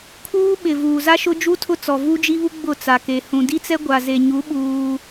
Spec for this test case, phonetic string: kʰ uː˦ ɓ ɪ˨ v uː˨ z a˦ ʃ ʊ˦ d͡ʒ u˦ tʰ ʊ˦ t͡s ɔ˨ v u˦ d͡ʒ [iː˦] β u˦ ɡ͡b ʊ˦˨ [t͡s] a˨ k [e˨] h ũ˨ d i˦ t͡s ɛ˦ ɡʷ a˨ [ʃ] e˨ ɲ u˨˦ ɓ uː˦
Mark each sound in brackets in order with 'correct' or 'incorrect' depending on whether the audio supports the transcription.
incorrect: i˦, correct, correct, incorrect: z

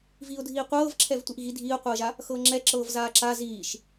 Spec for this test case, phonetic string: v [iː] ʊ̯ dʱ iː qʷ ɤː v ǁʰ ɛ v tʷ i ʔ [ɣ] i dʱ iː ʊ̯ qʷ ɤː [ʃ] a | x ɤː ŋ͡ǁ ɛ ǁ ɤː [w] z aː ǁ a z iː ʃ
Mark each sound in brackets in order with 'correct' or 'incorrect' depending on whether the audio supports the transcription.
correct, correct, incorrect: ʒ, incorrect: v

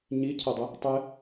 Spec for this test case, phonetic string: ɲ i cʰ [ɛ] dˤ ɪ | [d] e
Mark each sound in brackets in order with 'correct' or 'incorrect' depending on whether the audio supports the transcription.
correct, incorrect: tˤ

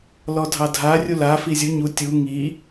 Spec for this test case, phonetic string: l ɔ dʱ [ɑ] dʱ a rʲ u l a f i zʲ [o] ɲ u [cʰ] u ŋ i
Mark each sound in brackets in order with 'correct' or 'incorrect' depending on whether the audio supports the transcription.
correct, incorrect: u, incorrect: tʲ

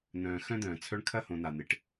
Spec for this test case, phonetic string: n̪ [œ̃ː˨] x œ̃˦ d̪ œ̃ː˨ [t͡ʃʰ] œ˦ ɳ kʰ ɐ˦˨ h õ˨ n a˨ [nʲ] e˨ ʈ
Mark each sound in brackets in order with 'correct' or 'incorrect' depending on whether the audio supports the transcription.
correct, incorrect: t͡sʰ, incorrect: n̪

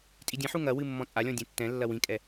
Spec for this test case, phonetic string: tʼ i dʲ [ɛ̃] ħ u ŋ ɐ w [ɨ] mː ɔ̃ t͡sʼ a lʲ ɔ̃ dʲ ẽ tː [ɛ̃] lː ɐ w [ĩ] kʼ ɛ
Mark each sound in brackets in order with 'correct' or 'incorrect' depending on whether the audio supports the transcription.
incorrect: ẽ, correct, correct, correct

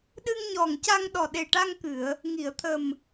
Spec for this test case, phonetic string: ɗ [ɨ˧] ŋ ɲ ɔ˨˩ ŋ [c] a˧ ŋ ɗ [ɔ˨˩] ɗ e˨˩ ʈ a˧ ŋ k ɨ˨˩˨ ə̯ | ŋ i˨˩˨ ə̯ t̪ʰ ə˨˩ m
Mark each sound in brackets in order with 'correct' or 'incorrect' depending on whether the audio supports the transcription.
correct, correct, correct

